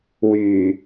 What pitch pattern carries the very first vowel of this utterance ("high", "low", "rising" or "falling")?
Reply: low